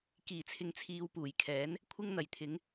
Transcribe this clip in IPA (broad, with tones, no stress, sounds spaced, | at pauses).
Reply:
k iː˨˩ t͡sʰ ɪ˧ ŋ t͡sʰ iː˧ w p uː˨˩ j kʰ ɛː˨˥ n | kʷʰ ɪ˥ ŋ n̪ ɐ˨˩ j t̪ʰ ɪ˨˥ ŋ